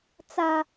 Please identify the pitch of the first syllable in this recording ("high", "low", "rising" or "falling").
low